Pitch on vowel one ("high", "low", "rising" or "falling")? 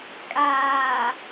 low